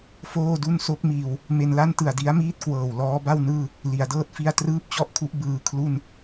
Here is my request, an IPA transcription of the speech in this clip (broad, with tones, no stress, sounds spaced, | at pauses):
f oː˥˩ d u˥˩ n s o˦˥ k̚ m iː˧ w | m e˧ n l a˥˩ n t ɯ˨˩ a̯ d i˦˥ a̯ m iː˥˩ t̚ k w ɤː˨˩ w l ɔː˦˥ b a˥˩ w n ɯː˥˩ | l i˩˦ a̯ d ɤː˥˩ t̚ f i˥˩ a̯ t r ɯː˥˩ p̚ t͡ɕ ɔ˥˩ ʔ kʰ u˦˥ ʔ b ɯː˧ kʰ l u˥˩ n